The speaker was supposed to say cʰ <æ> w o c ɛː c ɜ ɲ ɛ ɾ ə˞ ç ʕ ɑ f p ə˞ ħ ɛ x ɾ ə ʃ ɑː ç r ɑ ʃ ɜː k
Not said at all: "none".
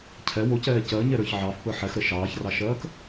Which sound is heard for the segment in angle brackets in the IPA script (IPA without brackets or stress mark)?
ɛ